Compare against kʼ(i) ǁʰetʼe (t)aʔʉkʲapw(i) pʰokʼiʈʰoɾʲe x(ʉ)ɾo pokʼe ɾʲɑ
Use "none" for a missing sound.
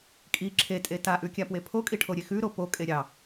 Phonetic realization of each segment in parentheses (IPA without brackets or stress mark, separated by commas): i, t, e, ʉ